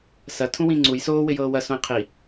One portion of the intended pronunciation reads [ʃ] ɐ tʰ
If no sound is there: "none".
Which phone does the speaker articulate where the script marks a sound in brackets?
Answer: s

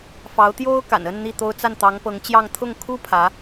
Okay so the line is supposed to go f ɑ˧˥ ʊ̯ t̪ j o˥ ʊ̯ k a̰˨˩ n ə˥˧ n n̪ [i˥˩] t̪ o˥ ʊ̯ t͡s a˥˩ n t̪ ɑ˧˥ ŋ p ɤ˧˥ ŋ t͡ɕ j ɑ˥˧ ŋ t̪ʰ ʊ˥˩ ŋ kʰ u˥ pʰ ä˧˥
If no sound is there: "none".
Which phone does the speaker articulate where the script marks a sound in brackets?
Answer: i˥˩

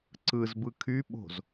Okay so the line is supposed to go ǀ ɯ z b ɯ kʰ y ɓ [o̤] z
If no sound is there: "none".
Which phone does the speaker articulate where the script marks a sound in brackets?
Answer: o̤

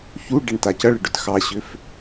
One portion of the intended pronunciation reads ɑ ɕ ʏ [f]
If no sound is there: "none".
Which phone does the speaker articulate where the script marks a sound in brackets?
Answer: f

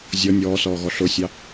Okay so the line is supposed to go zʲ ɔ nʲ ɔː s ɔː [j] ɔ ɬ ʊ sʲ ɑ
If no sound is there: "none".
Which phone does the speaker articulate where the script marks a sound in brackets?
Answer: ɣ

